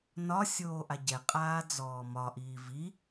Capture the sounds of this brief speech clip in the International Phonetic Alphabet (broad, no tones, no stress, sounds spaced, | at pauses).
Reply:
n ɒ sʲ oː ʔ a ɟ ɛ qʼ aː d͡z ɔː m ɒ ʔ iː v i